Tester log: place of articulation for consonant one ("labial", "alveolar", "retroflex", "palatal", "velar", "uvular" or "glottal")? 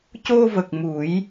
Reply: palatal